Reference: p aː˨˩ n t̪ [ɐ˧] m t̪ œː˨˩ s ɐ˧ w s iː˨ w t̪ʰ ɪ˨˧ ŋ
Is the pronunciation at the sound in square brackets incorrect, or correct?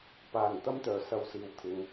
incorrect